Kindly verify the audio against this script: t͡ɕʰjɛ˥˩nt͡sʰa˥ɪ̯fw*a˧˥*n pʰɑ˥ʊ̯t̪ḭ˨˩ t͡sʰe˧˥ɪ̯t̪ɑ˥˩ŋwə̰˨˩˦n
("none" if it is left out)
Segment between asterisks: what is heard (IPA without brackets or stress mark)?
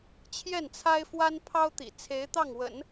a˥